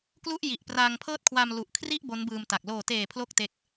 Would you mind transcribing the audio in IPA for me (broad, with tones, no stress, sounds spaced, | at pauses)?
k l u˥˩ ʔ j i˨˩ ʔ p r aː˧ ŋ pʰ ɤː˥˩ t̚ kʰ w a˧ m l u˨˩ ʔ kʰ r i˥˩ ʔ b o˦˥ n b ɯː˧ m t a˨˩ k̚ l oː˨˩ t eː˨˩ pʰ l o˥˩ k̚ t e˦˥ k̚